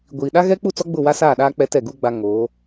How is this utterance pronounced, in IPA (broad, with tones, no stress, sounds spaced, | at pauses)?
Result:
ɡʷ iː˨ ɗ a˦ ɣ ɛ˦ k͡p u˦˨ t͡s ɔ˦ ɡ͡b ʊ˦˨ w a˦ s aː˦˨ ɗ aː˦ k͡p ɛ˦ t ɛ˦˨ ɡ u˦ ɡ͡b a˦ ŋ oː˨˦